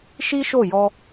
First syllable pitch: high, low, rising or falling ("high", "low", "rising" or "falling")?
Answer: high